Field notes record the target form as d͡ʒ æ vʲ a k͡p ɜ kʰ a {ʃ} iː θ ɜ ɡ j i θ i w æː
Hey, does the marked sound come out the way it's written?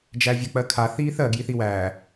no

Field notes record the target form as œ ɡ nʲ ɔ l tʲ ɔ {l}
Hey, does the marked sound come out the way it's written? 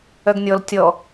no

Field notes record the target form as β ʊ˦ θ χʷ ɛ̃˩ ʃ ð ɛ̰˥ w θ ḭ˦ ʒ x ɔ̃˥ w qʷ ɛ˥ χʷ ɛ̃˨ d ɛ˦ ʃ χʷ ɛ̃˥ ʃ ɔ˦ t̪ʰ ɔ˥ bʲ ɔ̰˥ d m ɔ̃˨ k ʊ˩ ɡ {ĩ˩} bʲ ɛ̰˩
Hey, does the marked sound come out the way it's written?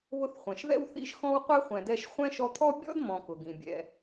yes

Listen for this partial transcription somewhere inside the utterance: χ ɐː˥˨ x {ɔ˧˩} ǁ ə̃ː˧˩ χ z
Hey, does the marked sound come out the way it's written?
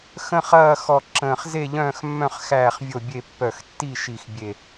yes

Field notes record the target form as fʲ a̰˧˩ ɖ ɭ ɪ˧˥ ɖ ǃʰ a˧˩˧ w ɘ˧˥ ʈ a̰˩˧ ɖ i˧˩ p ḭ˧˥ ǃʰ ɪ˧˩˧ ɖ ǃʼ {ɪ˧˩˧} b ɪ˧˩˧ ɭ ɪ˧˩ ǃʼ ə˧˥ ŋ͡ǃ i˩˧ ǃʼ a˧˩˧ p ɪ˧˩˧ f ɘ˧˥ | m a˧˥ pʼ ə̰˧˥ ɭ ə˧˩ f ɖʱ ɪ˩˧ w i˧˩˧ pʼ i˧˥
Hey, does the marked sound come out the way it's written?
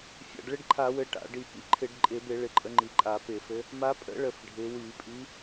yes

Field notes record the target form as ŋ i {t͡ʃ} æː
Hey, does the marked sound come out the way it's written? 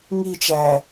yes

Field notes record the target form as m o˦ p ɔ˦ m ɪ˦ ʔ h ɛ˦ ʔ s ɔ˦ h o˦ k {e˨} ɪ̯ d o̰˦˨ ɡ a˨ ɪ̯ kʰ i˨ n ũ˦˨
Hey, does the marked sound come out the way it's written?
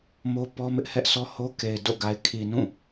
yes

